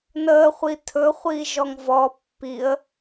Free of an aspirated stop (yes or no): no